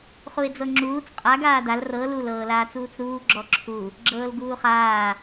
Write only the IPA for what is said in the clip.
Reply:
χ u ɪ̯ d͡z ɤ ŋ͡ǁ uː t͡s qʼ a ɡ aː d a l r ɤ l u l ɤː l aː t͡s uː t͡s ɾ uː ɡ͡ǁ ɔ ǁʰ u | ɡ͡ǁ ɤː l ɡ uː χ aː

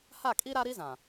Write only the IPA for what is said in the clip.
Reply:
h a˦˨ kʼ i˦ ɾ a˦ ɾ i˦ z ã˨

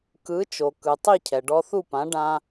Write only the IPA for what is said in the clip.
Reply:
k ɯ˩˥ t͡ʃ o˩ k ɯ˩ tˤ i˥˩ cʰ ɛ˩ ɖ ɔ˧ θ u˥˩ p ã˩˥ ɖ ã˧

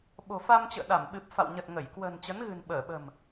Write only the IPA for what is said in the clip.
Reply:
ɓ o̤˨˩ f a˧ m t͡ɕ ə̰ː˧˨ ɗ a˧˩ m ɓ ɨ˨˩ p̚ f a̰˧˨ w ɲ ə˨˩ t̚ ŋ ə˧˩ j k w ə̤ː˨˩ n t͡ɕ ə˨˦ n ɣ ɨ̤˨˩ n ɓ əː˧˩ ɓ ə̤˨˩ m

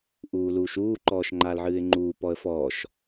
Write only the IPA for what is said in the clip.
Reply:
ʔ uː l uː ʃ uː ǃ ɔː ʃ ŋ͡ǃ aː l ʕ ɨː ɪ̯ ŋ͡ǃ uː p ɔ ə̯ f ɔː ʃ

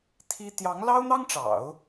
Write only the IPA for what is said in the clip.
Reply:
t̪ʰ i˥ t̪ j ɑ˧˥ ŋ l ɑ˥ ʊ̯ n̪ ɑ˥ ŋ ʈ͡ʂ ɑ̰˨˩˦ ʊ̯

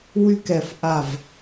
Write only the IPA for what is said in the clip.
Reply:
w y˥ k ɛ˧˩ f ʔ a˧˩ v

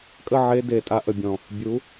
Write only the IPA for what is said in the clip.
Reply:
kʼ ə˦˨ ʕ e˧ d e˨ tʼ a˧ ʔ ə˨ bʲ ɔ̃˨ | bʲ u˨˦

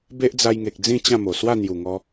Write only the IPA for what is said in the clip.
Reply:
b e˦ ʔ d͡z a˧ j ŋ e˨ k̚ d͡z ĩ˥˧ t͡ɕ ã˥˧ m o˨˩ s w a˥˧ n̪ j u˨˩ ŋ ɔ˧

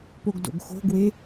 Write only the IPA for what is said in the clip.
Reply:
p o ɡ d o̰ ɡ x o̤ ɡ w e

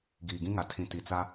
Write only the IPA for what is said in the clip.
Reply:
ɡ iː˨ ɡ ĩ˦ ŋ a˨ tʰ ĩ˨ t i˨ t͡s a˦

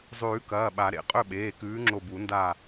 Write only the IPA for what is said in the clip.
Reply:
zˤ ʉː˨˩˦ k ɐː˩˧˩ ɓ a˨˩˦ ɾ ḛ˨˩˦ qʼ ɵ˥˨ ɓ eː˩˧˩ k ʉː˨˥ ŋ͡ǁ o˧˩ b u˨˩˦ n d a˧˩

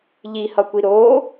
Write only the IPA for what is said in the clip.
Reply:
ʎ i h ʌ kʷ i ɾ o

